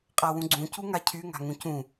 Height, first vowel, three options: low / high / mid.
low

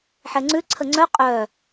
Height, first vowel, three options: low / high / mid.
mid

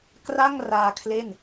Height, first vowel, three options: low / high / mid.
low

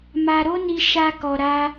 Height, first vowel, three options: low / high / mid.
low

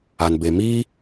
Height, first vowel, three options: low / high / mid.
low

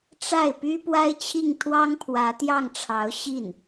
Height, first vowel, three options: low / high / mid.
low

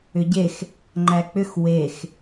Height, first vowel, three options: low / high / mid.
high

